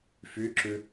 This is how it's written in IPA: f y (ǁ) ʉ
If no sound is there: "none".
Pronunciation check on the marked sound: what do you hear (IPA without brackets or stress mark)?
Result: ǁ